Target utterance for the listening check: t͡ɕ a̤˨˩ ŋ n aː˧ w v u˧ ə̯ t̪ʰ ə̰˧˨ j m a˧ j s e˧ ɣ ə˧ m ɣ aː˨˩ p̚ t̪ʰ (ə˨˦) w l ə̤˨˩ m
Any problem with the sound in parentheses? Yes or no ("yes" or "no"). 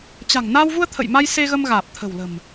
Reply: yes